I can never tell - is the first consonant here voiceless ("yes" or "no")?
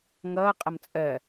no